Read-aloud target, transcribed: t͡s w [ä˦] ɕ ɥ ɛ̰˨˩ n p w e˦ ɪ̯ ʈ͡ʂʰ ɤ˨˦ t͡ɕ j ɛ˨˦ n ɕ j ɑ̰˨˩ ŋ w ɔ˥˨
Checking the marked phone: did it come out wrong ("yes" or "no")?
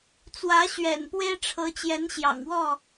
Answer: yes